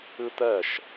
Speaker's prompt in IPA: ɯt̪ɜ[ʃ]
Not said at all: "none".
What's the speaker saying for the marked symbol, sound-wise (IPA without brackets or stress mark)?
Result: ʃ